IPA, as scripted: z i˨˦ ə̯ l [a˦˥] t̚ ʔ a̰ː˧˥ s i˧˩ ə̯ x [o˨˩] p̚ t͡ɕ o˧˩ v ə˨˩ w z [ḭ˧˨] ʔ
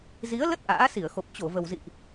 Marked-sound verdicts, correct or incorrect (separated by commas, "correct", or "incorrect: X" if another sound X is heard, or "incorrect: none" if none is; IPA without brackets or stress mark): incorrect: ə˦˥, correct, correct